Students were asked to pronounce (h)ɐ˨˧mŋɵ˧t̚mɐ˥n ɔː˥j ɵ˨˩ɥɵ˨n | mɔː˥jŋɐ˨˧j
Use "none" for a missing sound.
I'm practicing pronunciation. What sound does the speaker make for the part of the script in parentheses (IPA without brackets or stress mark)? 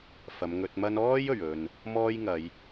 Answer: f